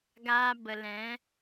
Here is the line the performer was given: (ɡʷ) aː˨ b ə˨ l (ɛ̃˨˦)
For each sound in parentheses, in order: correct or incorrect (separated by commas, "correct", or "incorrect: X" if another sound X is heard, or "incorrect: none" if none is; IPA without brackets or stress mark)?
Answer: incorrect: ɡ, correct